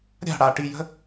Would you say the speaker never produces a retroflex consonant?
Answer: no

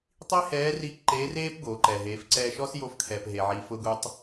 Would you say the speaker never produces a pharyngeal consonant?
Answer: no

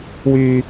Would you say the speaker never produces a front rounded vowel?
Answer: no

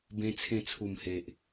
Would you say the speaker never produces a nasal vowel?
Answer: no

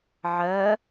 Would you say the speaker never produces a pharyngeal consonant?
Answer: no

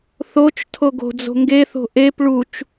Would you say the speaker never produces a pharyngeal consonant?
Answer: yes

